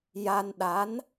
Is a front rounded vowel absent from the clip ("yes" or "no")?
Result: yes